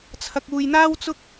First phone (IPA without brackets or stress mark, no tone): t͡sʰ